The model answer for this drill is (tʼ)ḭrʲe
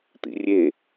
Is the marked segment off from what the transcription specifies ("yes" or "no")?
yes